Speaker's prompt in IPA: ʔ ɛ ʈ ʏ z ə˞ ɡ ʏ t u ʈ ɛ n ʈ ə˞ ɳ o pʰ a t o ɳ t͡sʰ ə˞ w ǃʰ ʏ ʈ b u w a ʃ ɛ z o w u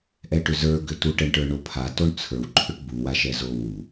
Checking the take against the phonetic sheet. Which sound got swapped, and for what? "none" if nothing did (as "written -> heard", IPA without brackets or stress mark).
n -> ɳ